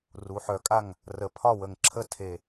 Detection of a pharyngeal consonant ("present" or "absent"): present